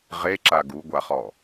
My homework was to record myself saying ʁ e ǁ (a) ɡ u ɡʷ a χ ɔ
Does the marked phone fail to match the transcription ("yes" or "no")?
no